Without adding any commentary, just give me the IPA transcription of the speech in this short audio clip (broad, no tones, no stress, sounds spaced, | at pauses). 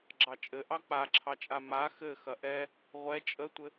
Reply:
ɡ͡ǁ ɑ t͡ʃʼ ɘ ʔ ɑ k͡p a ǁʰ ɑ t͡ʃʼ a m a x ɘ x ɐ ʔ ɛ | ʁʷ ɛ t͡ʃʼ ə tʷ ɘ